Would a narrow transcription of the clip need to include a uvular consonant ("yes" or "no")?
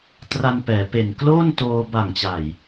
no